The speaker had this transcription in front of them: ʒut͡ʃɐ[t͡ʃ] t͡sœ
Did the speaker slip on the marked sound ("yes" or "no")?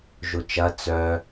yes